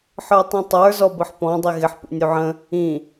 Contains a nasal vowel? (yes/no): yes